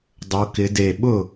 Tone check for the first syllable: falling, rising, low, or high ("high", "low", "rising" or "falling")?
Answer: rising